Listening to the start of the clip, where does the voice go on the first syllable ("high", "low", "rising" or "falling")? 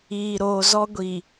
low